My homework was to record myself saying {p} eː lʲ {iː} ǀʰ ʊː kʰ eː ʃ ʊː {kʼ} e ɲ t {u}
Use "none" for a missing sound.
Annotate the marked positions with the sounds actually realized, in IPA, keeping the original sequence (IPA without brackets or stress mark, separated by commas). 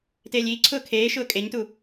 t, iː, kʼ, u